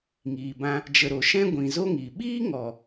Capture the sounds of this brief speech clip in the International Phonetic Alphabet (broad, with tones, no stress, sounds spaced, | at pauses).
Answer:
ŋ iː˨ b ã˧ | d͡ʒ ə˨ ɾ o˨ ʃ ɛ̃˦ ɡʷ ĩ˨ z o˦ ŋ i˨ ɓ iː˦ ŋ ɔ˨